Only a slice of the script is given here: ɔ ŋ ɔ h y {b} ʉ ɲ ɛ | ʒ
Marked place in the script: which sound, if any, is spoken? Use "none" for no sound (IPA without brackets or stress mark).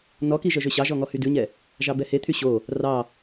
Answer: d